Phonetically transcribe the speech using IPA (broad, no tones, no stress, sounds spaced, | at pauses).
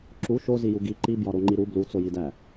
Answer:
ǁ u ʃ o z i j u ɡ i ǃ i b j ɒ ɾ o ŋ͡ǃ i ɾ u b l u t͡s o j i d æ